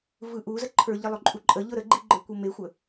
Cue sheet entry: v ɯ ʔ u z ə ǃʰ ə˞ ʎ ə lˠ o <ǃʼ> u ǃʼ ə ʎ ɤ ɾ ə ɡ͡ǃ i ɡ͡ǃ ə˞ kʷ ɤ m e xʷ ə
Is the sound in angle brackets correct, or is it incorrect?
correct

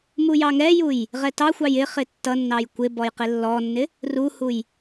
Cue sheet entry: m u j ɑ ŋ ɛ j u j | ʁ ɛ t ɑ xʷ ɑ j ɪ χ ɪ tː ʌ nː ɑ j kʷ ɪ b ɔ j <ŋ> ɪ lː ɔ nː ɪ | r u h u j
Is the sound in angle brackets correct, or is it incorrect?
incorrect: q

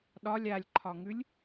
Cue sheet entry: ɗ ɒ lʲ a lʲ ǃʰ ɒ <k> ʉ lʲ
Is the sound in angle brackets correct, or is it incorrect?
incorrect: ŋ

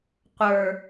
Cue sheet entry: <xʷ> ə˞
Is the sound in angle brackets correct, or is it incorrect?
incorrect: qʷ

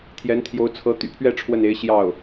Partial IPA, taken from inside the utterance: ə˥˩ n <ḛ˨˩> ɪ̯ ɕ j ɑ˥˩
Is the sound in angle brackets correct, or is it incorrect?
incorrect: e˧˥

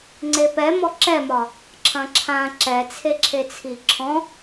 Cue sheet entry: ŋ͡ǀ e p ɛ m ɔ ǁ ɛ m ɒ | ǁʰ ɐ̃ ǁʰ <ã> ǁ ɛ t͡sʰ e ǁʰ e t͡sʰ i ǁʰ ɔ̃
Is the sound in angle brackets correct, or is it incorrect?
correct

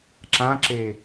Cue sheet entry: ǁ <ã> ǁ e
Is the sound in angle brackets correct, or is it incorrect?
correct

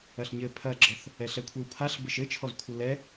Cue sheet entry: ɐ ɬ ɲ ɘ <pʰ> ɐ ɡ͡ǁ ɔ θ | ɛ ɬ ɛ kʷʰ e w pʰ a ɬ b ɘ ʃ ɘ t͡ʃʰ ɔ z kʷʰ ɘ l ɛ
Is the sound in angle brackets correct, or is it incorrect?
correct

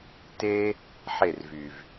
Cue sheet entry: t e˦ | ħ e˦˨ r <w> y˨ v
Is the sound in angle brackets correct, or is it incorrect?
incorrect: v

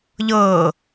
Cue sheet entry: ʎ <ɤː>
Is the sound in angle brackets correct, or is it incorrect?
correct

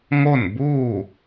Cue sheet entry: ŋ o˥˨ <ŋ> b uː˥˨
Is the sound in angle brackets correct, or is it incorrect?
incorrect: n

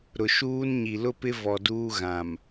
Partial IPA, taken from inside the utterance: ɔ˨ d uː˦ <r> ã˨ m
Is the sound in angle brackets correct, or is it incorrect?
incorrect: ɣ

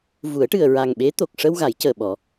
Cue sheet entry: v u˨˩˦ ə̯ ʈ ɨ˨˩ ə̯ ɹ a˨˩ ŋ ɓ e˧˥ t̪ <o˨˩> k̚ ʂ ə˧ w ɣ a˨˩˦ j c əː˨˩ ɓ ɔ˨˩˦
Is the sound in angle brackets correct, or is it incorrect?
correct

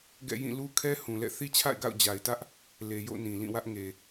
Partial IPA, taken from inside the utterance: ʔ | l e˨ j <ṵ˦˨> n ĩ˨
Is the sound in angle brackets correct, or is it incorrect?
incorrect: o̰˦˨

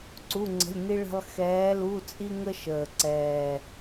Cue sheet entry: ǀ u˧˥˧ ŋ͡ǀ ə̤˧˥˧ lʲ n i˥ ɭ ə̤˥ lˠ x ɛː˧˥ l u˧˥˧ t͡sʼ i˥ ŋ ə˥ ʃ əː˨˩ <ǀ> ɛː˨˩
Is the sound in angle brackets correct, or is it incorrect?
correct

